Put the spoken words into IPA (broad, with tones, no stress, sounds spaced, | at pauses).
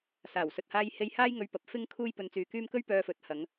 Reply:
s aː˨˩ w s ɵ˨ t̚ h aː˧ j h e˧ j h aː˥ j ŋ ɵ˧ ɥ p ɐ˨˥ p̚ f ɪ˥ ŋ kʰ uː˥ j p ɵ˧ n t͡s yː˧ k yː˥ m k ɵ˥ ɥ p œː˧ f ɵ˨˥ t̚ h ɐ˨˧ ŋ